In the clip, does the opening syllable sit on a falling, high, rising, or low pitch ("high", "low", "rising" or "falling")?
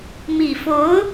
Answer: low